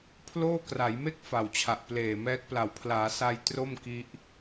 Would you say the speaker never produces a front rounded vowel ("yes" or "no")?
yes